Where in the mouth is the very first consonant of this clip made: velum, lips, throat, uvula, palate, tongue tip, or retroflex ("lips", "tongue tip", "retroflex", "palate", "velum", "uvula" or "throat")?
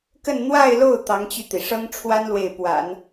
velum